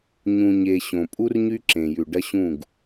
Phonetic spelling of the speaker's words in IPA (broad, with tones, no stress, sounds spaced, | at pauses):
ɲ ũ˨ ɲ e˨ ɕ õ˨ pʼ u˦ r ɲ y˦ ǁ ẽ˨ j ʉ˨ ɖ ɐ˦ ɕ ũ˦˨ ɡ